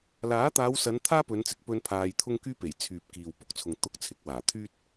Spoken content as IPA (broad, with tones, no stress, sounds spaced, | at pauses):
l aː˨˥ t̪ aː˨˧ w s ɐ˨˧ n t̪ʰ aː˥ p ɵ˨˧ n t͡s ɪ˨˥ k̚ p ɵ˧ n pʰ aː˧ j t̪ʰ ʊ˥ ŋ k yː˥ p e˨˩ j t͡sʰ yː˨ p̚ k iː˨ w p ʊ˧ k̚ t͡sʰ ʊ˨ ŋ t̪ ʊ˧ k̚ t͡sʰ ɪ˨˥ k̚ w aː˨˩ t̪ʰ yː˥ t̚